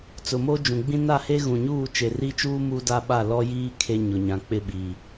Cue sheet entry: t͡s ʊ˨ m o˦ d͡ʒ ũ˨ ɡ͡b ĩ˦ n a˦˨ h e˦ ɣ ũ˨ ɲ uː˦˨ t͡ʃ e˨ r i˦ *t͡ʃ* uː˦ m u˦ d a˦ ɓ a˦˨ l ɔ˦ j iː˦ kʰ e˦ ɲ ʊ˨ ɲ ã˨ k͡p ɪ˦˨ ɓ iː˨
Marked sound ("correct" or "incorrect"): correct